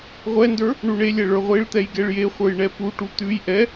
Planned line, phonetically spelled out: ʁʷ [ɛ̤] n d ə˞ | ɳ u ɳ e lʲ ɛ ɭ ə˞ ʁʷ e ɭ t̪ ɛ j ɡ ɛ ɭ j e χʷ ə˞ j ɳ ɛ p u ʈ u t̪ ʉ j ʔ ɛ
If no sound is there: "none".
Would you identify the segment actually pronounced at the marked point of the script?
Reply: ɛ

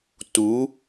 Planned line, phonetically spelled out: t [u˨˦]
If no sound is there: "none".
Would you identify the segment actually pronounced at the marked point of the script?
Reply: u˨˦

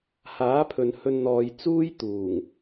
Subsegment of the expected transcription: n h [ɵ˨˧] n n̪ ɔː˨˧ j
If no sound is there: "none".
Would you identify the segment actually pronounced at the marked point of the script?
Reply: ɵ˧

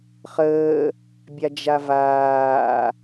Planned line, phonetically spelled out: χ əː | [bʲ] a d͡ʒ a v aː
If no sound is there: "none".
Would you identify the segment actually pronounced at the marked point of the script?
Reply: bʲ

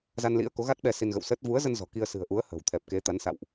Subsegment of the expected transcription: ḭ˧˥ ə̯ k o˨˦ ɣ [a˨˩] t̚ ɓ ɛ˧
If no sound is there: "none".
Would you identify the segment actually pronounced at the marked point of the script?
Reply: a˦˥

